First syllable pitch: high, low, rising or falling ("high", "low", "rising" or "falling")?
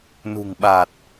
low